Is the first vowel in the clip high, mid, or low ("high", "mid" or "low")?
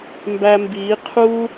low